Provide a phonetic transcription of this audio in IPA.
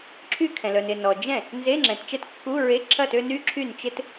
ǁʰy˥˧kʰɛ̃˨lœ˨n ɪ˨nɔ˨d͡ʒɛ̃˥˩ | nze˧˥˧ŋ͡ǁɛ̃˨tt͡ʃɛ˥˩tkːu˧˥˧ ɹe˧˥˧ǁʰɐ˥˩tø˥˧ ny˥˧ǁʰy˥˩n t͡ʃɪ˥˧t

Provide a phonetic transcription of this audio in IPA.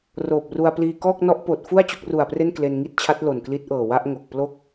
roː˨˩p̚ru˧a̯pliː˧ kɔː˥˩k̚nɔ˦˥ʔpoː˨˩t̚fu˥˩a̯ t͡ɕo˦˥k̚ru˨˩a̯pre˥˩n kle˧nŋi˥˩t̚t͡ɕʰa˦˥t̚ lo˨˩nkli˦˥t̚ʔɤː˨˩wa˥˩ʔ ŋo˨˩k̚ plo˥˩k̚

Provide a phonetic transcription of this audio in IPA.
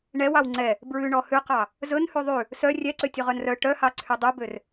ɳɛwɑw ŋ͡ǀɛ | bɹʉɳɔ hʉqɑ | zɵn hʉðˤʉ | sœ rʲɛǀøtʲɵ ʁœnrœ ʈœhɑǀʰy dˤɵbør

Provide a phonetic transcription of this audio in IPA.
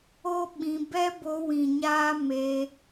o˦ ɓĩ˧ bɛ˦bo˧wĩ˨ ɲaː˦me˧

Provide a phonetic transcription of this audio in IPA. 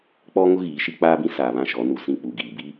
k͡pɔ˦ŋʊ˦ ɣiː˨˦ʃi˦ k͡paː˦bĩ˦ saː˨βã˦˨ʃɔ˨˦ nu˨sĩ˦˨ k͡pu˨ɡiː˨ bi˦

